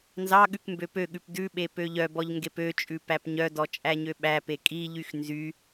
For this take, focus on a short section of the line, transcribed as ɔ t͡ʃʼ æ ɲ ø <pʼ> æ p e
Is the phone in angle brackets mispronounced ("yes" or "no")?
yes